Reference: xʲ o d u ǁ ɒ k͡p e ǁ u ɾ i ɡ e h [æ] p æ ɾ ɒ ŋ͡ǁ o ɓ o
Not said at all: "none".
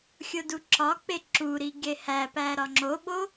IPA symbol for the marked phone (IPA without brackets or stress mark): æ